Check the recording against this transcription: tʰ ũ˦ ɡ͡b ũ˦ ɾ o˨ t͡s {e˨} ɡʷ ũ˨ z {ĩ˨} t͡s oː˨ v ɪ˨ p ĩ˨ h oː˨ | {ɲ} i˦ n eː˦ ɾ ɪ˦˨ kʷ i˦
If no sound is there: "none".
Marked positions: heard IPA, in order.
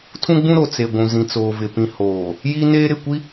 e˨, ĩ˨, j

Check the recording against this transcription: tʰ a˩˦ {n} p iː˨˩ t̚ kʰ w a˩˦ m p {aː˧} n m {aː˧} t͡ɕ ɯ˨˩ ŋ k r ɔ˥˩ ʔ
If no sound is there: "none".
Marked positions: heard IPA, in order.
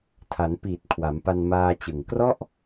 n, a˧, aː˧

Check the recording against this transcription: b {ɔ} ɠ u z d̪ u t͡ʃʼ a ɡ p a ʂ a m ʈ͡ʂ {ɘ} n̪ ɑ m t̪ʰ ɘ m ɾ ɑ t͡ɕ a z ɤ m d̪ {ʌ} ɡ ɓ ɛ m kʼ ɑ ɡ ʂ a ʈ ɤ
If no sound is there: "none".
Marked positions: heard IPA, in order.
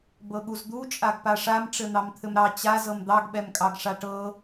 ɤ, ɘ, ɑ

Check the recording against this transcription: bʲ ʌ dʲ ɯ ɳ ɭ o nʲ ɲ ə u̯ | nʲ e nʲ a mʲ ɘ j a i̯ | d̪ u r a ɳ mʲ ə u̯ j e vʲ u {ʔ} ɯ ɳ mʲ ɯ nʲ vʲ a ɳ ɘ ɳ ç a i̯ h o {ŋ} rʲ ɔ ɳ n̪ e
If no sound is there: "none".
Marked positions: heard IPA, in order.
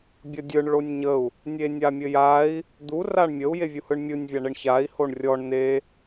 h, ɳ

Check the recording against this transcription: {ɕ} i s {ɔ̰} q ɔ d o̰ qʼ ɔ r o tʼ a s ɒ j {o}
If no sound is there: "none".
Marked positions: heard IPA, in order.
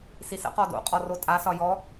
s, ə̰, ɔ

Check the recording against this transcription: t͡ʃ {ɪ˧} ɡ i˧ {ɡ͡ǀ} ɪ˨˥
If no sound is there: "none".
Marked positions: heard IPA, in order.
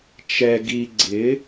ɛ˧, ɡ͡ǀ

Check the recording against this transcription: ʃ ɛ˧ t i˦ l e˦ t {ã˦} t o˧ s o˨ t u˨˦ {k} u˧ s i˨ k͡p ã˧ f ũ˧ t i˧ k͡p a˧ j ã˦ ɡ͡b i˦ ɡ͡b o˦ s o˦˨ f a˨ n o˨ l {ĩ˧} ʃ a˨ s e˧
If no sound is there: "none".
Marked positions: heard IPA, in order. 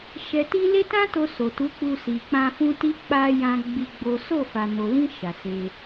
ã˦, k͡p, ĩ˧

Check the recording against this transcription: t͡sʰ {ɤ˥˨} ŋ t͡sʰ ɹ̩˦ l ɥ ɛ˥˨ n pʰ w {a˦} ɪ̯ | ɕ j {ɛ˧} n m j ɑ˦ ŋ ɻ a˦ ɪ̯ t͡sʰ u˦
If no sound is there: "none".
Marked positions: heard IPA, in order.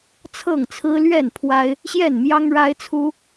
ɤ˥˨, a˦, ɛ˥˨

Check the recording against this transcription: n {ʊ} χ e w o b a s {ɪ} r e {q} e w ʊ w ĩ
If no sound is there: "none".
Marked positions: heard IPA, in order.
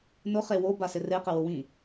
ʊ, ɪ, q

